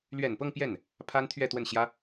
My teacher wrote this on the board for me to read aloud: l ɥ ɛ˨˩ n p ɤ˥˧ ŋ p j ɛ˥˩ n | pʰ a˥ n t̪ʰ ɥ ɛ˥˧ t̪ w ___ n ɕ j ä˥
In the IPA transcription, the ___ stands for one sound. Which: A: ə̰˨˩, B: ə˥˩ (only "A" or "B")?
B